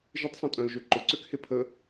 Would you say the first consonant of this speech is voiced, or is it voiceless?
voiced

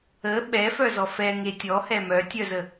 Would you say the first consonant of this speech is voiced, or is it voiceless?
voiced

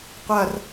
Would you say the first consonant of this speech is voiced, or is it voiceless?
voiceless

